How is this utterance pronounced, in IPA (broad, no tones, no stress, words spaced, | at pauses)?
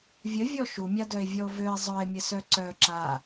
vʲəvʲɔ ʃumʲadœe̯vʲɔo̯ vøe̯ zˤœe̯mʲəsœ ǀœ ǁa